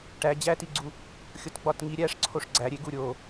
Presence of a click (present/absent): present